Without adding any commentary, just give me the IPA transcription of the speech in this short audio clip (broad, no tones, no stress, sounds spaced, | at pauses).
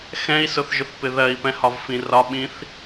x ɛ̃ i̯ s ʊ θ ʒ ʊ θ p ɪ ð ɜ i̯ p ɛ̃ h ɒ v f ĩ r ɒ ɓ ĩ θ